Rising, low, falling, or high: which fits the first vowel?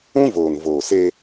high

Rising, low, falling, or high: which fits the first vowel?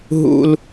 high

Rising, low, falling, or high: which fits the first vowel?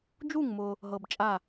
falling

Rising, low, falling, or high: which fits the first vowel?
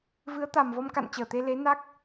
rising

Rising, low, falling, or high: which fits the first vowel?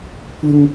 high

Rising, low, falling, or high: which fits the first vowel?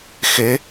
rising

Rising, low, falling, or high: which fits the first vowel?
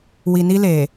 low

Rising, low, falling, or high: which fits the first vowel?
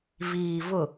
low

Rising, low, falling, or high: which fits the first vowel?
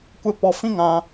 high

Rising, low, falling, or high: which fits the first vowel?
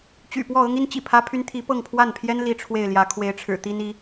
low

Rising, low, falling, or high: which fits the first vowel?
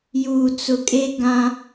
low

